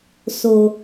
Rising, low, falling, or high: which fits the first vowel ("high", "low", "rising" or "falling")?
low